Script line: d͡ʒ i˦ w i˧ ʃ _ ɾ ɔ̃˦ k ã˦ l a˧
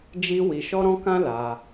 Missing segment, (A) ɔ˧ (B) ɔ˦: B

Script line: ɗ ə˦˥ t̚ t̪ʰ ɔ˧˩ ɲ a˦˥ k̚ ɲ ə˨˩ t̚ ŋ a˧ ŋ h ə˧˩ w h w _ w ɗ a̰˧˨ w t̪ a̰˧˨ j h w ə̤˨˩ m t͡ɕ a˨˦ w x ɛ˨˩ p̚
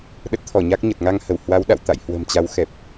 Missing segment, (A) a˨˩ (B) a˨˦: B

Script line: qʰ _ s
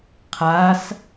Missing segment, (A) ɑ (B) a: B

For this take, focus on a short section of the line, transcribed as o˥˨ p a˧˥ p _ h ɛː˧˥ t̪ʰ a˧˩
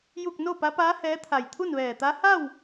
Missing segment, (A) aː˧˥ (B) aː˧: A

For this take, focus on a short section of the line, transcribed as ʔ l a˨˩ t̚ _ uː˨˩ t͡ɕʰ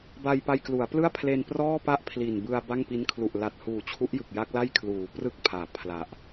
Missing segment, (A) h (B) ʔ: A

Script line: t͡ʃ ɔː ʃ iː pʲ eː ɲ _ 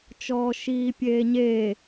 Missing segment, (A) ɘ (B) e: B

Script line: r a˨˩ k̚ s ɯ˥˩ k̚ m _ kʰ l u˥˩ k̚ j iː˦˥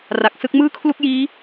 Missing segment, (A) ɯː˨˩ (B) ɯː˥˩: B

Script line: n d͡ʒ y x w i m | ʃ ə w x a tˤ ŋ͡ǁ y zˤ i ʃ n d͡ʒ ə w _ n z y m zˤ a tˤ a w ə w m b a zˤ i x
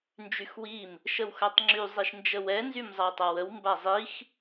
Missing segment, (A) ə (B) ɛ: B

